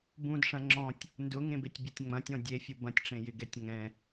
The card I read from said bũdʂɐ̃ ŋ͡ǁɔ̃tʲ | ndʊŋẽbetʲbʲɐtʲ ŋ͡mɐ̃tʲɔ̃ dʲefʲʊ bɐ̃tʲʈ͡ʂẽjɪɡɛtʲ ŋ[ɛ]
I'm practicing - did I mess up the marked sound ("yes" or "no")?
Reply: yes